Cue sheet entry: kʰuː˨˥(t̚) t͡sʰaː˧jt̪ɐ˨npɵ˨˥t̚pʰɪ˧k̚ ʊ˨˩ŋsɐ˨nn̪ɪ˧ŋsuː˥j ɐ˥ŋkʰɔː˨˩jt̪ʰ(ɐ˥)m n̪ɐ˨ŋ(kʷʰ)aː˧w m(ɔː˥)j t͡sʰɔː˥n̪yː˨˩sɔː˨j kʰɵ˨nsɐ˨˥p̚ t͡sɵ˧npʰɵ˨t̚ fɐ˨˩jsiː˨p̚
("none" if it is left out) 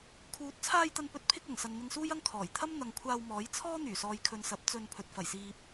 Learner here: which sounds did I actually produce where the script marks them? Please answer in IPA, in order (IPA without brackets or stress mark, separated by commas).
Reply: t̚, ɐ˥, kʷʰ, ɔː˨˥